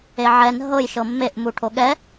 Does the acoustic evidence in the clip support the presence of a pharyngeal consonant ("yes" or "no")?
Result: yes